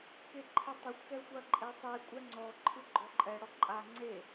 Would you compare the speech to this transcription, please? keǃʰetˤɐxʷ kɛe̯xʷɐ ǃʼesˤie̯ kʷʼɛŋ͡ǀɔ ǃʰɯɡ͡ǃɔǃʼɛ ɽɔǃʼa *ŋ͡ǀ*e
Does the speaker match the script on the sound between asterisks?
yes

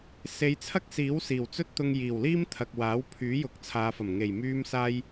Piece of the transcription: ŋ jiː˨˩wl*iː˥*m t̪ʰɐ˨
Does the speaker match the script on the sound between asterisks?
yes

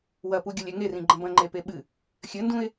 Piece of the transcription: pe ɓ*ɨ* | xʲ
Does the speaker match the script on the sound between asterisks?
yes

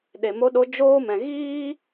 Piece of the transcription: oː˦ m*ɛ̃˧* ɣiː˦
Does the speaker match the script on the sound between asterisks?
yes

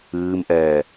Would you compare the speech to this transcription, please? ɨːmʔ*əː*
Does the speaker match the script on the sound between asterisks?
no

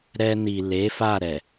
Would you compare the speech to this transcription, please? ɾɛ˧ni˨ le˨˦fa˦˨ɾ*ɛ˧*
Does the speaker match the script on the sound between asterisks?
no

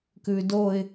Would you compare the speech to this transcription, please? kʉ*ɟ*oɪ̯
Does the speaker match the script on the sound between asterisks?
no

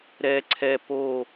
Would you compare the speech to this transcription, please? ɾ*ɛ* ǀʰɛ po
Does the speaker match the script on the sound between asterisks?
yes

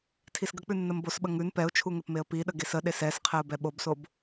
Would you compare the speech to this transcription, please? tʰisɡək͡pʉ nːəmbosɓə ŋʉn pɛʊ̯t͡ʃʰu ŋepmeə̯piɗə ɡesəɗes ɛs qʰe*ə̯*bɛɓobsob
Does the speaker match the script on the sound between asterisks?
no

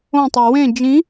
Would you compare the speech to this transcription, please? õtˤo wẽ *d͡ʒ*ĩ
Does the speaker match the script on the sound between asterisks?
yes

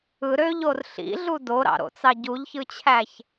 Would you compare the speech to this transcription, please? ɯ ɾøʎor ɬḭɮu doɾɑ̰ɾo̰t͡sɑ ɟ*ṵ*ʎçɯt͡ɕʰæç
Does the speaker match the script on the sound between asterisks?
no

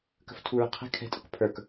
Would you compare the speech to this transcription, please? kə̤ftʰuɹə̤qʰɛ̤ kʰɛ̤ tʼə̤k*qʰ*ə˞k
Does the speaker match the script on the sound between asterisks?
no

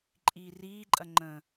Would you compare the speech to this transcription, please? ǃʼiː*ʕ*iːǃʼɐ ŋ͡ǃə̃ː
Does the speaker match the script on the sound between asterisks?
no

